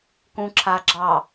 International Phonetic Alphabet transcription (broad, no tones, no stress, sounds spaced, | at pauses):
k ũ ǁʰ a ɡ͡ǁ ɑ